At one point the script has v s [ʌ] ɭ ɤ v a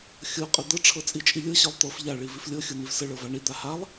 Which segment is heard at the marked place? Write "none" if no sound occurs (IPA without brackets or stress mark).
ə